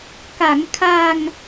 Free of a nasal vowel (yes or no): yes